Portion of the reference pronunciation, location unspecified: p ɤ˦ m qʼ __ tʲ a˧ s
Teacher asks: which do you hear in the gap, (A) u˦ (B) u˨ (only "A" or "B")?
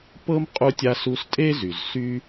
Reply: A